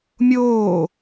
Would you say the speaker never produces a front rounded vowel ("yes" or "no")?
yes